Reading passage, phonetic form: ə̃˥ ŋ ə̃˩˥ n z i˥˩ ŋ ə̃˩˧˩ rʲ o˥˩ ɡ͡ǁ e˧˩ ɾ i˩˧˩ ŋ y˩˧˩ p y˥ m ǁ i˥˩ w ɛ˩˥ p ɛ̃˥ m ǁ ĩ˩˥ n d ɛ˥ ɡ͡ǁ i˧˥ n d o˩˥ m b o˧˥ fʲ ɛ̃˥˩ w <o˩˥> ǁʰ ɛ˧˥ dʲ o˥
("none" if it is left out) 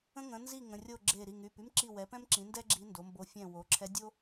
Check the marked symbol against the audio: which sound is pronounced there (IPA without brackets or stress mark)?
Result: o˩˥